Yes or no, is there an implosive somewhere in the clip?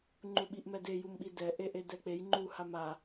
yes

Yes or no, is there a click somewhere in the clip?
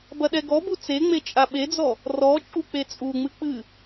no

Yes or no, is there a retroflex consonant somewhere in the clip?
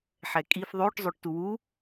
yes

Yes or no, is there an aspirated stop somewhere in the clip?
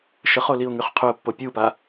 yes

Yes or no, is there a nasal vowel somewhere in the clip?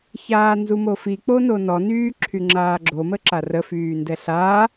no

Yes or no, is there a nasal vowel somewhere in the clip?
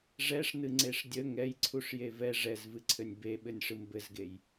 no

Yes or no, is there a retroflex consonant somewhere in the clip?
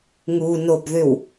no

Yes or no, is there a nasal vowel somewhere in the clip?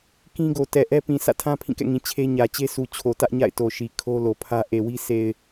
yes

